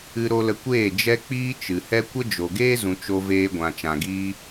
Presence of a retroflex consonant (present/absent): absent